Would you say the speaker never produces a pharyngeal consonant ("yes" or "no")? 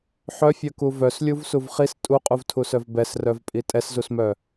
no